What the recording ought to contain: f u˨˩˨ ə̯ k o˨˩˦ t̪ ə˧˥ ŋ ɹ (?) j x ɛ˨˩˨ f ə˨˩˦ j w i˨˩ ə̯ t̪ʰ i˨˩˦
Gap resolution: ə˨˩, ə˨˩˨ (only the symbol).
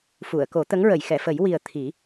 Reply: ə˨˩˨